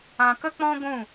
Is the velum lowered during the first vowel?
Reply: yes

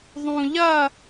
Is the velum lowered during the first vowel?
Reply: yes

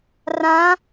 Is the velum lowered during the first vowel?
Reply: yes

